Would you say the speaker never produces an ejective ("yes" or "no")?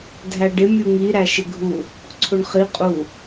no